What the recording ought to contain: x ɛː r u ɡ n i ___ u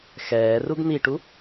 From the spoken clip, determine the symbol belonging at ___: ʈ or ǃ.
ʈ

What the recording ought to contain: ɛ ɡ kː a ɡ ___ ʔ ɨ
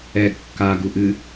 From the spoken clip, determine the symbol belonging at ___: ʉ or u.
u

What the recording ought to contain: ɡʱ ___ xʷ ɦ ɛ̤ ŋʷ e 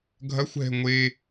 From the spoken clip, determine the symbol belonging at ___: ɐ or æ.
ɐ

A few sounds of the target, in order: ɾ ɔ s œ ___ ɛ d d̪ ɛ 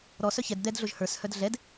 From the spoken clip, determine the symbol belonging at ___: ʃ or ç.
ç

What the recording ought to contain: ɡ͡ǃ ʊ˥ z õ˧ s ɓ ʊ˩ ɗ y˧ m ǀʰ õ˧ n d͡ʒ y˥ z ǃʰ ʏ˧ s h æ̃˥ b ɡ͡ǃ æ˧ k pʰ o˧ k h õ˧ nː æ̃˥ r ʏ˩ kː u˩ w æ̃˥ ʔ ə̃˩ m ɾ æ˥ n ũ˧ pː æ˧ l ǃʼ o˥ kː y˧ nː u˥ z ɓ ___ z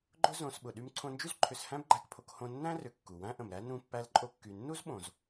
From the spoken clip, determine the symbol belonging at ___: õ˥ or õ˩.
õ˩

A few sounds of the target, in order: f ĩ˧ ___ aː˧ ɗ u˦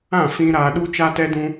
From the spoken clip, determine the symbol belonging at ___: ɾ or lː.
ɾ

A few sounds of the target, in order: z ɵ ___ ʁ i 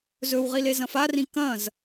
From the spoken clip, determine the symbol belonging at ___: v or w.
w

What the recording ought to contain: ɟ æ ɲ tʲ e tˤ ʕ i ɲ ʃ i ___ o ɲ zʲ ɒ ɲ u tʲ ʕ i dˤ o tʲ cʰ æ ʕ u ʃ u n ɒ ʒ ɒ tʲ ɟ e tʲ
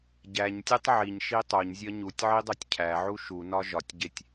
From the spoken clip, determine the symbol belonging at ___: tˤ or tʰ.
tˤ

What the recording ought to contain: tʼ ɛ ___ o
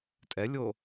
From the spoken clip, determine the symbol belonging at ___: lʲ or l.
lʲ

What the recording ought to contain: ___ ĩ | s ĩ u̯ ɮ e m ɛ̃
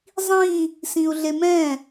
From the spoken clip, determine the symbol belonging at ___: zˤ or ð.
zˤ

